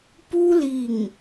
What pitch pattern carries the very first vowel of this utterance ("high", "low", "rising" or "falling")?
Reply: high